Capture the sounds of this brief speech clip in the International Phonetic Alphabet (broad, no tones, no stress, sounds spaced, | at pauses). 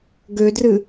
ɡ ø d r ɨ